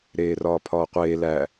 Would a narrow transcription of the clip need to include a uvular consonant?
yes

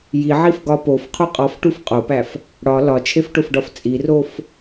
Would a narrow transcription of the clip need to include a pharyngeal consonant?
yes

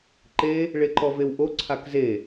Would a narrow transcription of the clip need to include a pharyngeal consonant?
no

